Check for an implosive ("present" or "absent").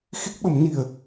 present